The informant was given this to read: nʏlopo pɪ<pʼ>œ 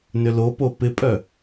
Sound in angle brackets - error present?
no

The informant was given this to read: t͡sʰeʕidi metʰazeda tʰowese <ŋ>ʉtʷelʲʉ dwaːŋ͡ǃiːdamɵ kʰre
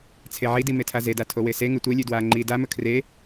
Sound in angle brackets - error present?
no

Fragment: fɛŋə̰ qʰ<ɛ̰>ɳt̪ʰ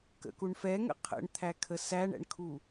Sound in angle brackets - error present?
yes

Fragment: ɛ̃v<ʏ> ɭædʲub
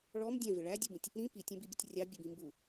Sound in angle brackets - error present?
yes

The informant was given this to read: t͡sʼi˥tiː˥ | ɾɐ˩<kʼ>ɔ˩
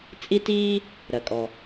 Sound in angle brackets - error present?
no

